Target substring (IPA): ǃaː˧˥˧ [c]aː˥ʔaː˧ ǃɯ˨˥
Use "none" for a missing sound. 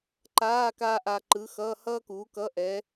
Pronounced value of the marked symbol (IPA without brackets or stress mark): k